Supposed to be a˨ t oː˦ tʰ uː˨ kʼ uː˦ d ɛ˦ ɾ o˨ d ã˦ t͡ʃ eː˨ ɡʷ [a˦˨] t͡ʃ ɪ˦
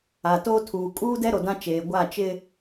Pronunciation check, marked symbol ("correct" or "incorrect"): correct